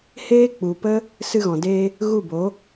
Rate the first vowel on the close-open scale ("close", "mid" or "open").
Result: mid